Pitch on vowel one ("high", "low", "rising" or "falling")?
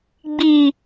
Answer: low